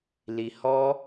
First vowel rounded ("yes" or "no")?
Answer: no